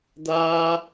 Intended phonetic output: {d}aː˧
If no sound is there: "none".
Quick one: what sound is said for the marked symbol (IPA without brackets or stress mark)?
d